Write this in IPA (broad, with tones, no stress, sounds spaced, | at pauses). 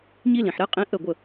ɲ i˦ l ĩ˨ ħ ɾ ɛ˦ qʼ ĩ˧ ʔ ə˦˨ ɡʷ ə˦˨